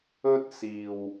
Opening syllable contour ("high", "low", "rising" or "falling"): high